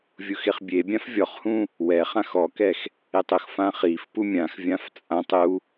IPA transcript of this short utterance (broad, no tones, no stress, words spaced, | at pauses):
vʲʊxeχbʲebʲãf vʲɔχhũ | wɛ χãxɔkɛx | etˤʊxfã χif pumʲãxvʲãf t͡sʼãtˤ u